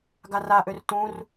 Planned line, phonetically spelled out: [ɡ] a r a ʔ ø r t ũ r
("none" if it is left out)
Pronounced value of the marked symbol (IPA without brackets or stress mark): ɡ